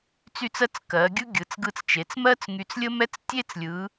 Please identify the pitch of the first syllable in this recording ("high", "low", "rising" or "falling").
falling